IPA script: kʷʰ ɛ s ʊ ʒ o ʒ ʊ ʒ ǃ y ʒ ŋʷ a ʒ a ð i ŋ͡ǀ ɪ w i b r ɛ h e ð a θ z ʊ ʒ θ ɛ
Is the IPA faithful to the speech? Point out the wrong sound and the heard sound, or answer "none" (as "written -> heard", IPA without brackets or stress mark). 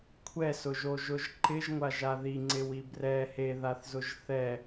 y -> ɪ